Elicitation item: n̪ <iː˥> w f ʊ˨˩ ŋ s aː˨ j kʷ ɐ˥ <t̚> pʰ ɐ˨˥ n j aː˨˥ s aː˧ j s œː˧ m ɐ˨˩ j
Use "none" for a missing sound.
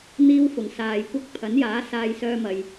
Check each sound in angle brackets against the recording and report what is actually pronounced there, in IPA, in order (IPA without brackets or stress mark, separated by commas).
iː˥, k̚